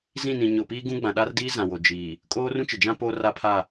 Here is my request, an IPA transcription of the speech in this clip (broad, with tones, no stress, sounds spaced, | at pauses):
z ĩ˦˨ n ĩ˨ ɲ ʊ˨ p iː˦ ɡ ũ˦ ɡ͡b ã˨ ɗ a˦ r d iː˦ z ã˨ w o˨ d͡ʒ iː˨ | kʼ oː˦ r ũ˦ t͡ʃ ɪ˨ d͡ʒ ã˦ p oː˦ r a˦ pʰ a˦˨